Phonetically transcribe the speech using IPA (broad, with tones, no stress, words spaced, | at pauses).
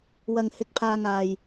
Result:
wɐ˧ŋhɪ˧k̚pʰaː˧ŋ aː˧j